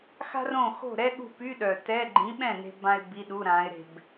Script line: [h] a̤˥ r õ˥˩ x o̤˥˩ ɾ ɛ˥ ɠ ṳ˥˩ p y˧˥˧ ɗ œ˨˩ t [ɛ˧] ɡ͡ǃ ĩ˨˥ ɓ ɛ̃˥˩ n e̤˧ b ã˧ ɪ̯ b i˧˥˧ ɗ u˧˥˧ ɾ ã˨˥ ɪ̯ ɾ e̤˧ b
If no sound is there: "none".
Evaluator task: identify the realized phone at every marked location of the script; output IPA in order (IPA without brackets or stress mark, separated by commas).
x, ɛ˧˥˧